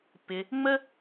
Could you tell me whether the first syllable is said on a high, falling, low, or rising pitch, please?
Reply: low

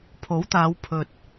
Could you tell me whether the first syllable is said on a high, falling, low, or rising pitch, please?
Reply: rising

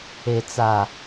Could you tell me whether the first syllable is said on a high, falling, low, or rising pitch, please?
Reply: low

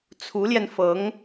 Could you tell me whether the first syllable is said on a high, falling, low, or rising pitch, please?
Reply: rising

